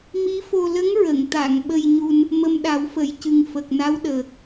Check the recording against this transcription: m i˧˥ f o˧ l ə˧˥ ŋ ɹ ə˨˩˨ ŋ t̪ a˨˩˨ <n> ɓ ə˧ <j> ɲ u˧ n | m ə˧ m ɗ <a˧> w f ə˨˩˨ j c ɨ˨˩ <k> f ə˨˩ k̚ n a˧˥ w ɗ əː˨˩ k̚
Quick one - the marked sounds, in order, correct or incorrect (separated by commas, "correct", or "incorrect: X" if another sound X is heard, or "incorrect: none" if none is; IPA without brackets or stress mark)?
incorrect: ŋ, correct, incorrect: a˨˩˦, incorrect: ŋ